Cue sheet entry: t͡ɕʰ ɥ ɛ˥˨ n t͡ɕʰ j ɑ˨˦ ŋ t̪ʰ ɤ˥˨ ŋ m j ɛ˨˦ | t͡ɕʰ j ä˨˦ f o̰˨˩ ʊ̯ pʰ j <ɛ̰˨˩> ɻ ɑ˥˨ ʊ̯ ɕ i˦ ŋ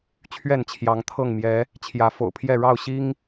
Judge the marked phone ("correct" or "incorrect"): incorrect